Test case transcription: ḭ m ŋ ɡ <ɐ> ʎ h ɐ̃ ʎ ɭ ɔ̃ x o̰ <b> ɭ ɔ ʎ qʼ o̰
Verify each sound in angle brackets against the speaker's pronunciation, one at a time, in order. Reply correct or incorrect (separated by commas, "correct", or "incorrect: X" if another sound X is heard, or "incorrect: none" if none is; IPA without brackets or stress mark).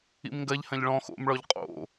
correct, incorrect: m